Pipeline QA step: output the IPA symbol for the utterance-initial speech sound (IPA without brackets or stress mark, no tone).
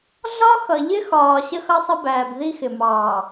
ɮ